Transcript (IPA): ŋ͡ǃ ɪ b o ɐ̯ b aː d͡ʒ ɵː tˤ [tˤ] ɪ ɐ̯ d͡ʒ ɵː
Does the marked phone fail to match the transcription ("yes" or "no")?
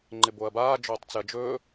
yes